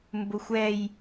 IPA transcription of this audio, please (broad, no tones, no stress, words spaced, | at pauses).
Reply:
mbʊxʷɛj